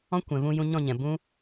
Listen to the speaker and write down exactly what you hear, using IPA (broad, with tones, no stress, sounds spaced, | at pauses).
ɔ̃˦ kʷ ɛ̃˨ v ũ˧ j ũ˧ ɲ ɔ̃˦˨ ɲ ɛ̃˨ b ũ˦